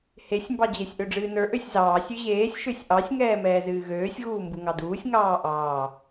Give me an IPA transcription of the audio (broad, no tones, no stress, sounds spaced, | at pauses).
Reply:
h e sʲ m b ɑ d͡ʑ e sʲ ʔ ø ɖ͡ʐ ɨː n ə˞ ʔ ø sʲ z ɑː sʲ ø ʑ eː sʲ ʃ ø sʲ ʔ ɑ sʲ ŋ ɛː m ɛː z ɨː ɣ øː sʲ ɣ uː m b u ŋ ɑ d uː sʲ ŋ ɑː ʔ ɑː